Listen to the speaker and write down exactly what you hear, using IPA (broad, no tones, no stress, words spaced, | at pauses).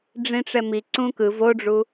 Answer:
ɖ͡ʐĩʈ͡ʂɛmi ǀũkɯv oɖ͡ʐu